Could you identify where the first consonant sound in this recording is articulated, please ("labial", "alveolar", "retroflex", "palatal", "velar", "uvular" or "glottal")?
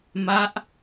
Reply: labial